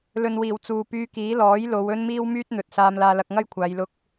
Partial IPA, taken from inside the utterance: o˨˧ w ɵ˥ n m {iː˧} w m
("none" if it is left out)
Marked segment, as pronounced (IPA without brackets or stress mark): iː˥